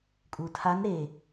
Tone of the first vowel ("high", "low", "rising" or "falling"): low